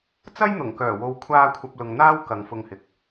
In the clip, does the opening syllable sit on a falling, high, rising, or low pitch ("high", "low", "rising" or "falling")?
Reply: high